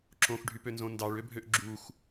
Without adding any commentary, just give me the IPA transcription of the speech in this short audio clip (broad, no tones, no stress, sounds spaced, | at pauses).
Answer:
ǁ õ x ɖʱ y p ø n z õ n d ɑ ɭ ø bʱ ø ʔ ɡ͡ǁ u x